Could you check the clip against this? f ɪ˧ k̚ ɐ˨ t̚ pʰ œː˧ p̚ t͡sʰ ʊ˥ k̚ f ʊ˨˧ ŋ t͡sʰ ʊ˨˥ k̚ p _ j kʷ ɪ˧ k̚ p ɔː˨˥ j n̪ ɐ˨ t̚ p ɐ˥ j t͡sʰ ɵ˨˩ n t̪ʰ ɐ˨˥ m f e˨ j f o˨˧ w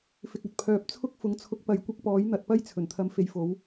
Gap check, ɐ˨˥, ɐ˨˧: ɐ˨˧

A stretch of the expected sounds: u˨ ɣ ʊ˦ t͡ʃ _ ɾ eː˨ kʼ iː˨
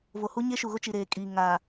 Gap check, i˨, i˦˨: i˨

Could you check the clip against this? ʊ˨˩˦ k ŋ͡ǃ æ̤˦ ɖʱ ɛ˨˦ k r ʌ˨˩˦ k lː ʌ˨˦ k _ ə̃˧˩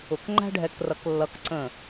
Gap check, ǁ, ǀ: ǀ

